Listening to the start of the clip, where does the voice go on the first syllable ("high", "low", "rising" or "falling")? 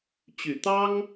low